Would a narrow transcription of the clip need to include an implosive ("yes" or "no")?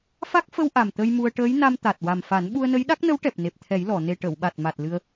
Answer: yes